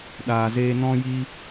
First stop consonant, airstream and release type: implosive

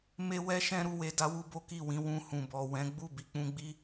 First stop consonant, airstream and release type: plain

